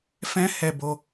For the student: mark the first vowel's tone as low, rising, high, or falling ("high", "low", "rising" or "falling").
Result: high